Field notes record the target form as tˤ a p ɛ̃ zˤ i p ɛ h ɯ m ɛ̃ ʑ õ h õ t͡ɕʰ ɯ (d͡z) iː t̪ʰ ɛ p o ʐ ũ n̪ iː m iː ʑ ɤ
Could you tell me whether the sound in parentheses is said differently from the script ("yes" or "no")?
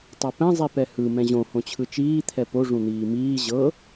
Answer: yes